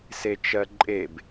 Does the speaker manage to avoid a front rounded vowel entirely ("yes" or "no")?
yes